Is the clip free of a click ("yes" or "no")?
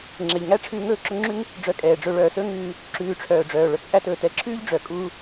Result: no